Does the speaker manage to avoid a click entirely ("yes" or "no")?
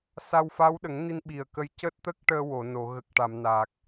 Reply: yes